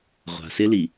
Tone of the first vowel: low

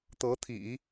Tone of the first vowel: rising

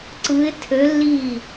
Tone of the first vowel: rising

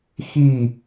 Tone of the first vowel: falling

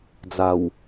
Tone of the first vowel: low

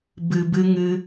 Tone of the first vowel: low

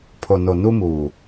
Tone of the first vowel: low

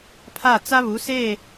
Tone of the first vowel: falling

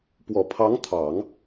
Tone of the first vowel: low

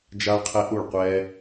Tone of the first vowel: high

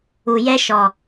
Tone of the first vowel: low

